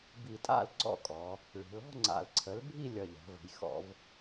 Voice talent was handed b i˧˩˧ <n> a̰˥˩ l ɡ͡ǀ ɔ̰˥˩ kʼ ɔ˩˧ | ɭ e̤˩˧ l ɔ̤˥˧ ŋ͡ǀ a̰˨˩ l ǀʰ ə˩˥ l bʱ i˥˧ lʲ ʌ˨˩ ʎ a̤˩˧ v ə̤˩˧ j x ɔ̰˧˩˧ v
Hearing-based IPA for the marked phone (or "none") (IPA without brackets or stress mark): tʼ